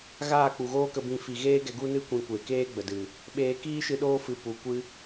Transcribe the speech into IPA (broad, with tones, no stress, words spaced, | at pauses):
ɣaː˦˨k͡pu˨ɣoː˦kə˧ bĩ˧ fi˨ɣeː˦ɡɛ˧ ɡu˦nɨ˦ kʷĩ˧kʷe˨ keː˦ɡ͡bə˨dɨ˨ | ɓeː˧kiː˦ʃɨ˧ ɗoː˦fɨ˨˦pu˨ kʷɨ˦